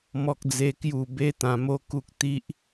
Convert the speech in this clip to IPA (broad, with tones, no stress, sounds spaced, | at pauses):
m ɔ˦ k̚ d͡z e˦ k j u˥˧ b e˦ t̪ ã˧ m o˦ k u˦ k̚ t̪ i˦ ʔ